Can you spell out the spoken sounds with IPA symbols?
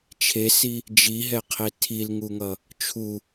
t͡ʃʰ e s i | d͡ʒ i ɦ ɛ qʰ e tʰ i l ŋ u ŋ ʌ | t͡ʃʰ u

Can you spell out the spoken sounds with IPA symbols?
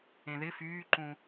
ẽ ð ɪ f yː ǃ ũ

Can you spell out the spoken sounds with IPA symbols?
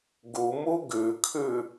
ɡ u m u ɡ ʉ kʰ ʉ

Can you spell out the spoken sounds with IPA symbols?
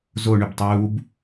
z o ɳ y b tˤ uː b

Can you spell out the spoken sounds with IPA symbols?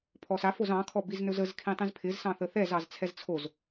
pʰ ɔ s a f o z ɑ̃ kʰ ɔ b i z n ɵ z ə z kʰ ĩ tˤ ĩ z pʰ ɪ z s ɑ̃ θ ə θ ɛ z ɑ z t͡sʰ ɛ z t͡sʰ o z

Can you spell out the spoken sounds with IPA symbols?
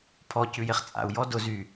pʰ ɔ c ʉ j e χ t͡sʼ a̰ u̯ j ɔ d ʊ z y

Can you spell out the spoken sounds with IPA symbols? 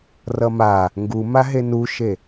r ʌ m a | ŋ ɡ u m a ɦ e n u ʃ e

